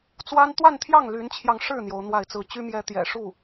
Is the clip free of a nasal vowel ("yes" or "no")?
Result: yes